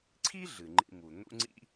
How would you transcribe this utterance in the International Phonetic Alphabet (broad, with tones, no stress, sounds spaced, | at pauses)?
ǀʰ i˥ ɮ ɨ˩ ŋ͡ǃ ḭ˧ m u˩ n̪ ṵ˥ ŋ͡ǀ ḭ˥